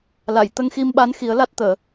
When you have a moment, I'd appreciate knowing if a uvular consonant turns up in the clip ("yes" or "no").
no